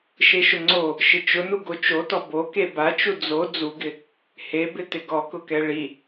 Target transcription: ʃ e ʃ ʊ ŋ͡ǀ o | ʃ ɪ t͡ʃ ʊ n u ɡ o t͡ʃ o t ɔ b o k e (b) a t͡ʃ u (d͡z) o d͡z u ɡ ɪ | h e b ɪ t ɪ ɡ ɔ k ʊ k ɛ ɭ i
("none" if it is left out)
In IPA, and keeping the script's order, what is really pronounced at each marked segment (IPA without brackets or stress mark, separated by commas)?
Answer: b, d͡z